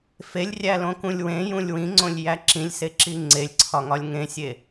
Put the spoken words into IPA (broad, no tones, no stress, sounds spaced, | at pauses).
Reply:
f e lʲ rʲ æ l õ k ũ lʲ w ẽ j ũ lʲ w ĩ ŋ͡ǀ õ lʲ j æ ǁ ĩ lʲ s e ǁ i ŋ͡ǀ e lʲ ǀʰ ɒ ŋ ɒ lʲ ŋ ẽ sʲ e